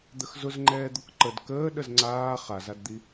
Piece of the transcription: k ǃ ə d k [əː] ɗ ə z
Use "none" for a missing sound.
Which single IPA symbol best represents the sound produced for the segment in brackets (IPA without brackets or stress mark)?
əː